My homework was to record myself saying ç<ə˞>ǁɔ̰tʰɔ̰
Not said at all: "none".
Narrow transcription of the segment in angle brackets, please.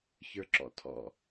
ə˞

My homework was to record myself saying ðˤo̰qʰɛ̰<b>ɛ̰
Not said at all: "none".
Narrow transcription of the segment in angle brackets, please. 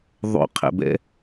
b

